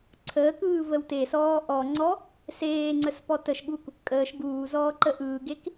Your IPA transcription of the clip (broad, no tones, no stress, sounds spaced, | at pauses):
ǀʰ əː k ɯː v ə w t e s ɔː ʔ ɔ ŋ͡ǀ ɔ | s eː ŋ͡ǀ ə s p ɔ t ə ʃ ɠ u k | kʼ əː ʃ ɡ uː z ɔː ǃ ə ʔ ɯː ɡ e k